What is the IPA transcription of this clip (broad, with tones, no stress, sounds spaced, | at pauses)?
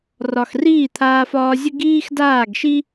r ɒ˨ x r iː˦˨ t̪ʰ aː˧ f ɒː˧ zʲ ə˦ ɡ iː˦ x d aː˦˨ ɡ ʃ i˦